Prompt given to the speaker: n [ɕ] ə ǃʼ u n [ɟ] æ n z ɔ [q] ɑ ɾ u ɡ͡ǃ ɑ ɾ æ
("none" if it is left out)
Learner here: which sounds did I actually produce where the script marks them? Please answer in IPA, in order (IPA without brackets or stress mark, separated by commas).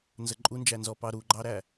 z, d͡ʒ, p